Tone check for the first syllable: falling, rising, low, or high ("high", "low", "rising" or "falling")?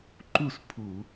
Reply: falling